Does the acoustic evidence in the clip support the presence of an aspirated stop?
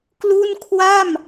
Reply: yes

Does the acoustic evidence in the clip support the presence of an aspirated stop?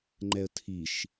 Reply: yes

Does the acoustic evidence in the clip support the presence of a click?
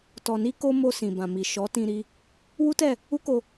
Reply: no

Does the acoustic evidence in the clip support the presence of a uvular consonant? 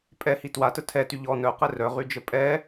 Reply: yes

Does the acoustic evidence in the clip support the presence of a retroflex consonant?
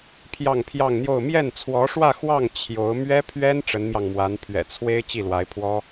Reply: yes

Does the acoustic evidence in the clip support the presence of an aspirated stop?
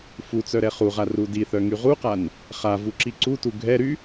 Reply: no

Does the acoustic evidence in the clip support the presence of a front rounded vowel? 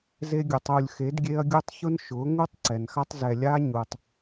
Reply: no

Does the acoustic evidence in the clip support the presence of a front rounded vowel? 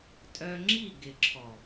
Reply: yes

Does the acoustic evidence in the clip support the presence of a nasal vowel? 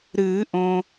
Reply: yes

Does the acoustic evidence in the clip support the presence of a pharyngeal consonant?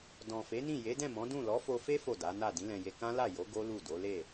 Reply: no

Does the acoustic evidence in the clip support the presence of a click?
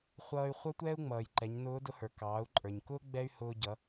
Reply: yes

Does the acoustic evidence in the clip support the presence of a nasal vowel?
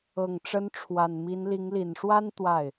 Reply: no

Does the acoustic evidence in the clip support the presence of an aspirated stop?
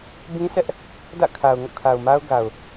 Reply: yes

